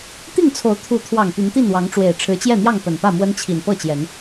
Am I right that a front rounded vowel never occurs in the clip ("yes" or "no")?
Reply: no